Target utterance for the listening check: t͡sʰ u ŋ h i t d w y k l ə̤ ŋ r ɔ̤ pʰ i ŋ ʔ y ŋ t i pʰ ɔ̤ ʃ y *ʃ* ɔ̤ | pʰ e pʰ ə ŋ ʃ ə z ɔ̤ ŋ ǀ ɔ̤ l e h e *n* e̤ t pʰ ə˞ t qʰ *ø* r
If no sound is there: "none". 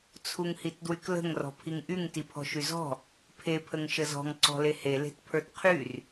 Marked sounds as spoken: z, l, y

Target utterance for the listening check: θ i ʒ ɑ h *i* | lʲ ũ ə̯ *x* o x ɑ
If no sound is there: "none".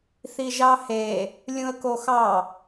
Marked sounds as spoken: e, k

